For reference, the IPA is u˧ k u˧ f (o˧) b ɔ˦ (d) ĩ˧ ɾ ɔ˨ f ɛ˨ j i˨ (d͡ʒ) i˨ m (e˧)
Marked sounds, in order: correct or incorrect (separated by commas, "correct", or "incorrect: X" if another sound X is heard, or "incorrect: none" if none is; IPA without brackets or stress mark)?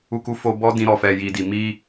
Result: correct, correct, incorrect: d, incorrect: i˧